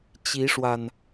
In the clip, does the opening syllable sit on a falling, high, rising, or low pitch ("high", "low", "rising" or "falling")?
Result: rising